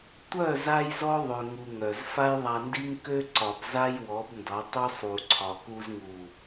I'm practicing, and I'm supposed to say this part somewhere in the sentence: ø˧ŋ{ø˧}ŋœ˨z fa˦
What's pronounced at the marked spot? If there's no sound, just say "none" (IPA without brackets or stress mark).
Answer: u˧